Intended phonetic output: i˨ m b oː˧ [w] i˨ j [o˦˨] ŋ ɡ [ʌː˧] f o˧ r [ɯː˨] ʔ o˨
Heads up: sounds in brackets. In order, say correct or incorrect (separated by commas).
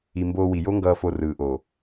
correct, incorrect, correct, correct